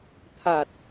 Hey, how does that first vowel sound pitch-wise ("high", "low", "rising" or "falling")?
low